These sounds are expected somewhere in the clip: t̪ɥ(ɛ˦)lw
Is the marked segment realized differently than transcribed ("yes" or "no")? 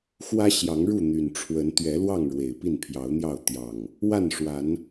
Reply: yes